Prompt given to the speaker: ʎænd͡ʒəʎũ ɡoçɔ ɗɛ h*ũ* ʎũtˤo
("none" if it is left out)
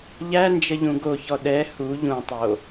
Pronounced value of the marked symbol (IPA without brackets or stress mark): u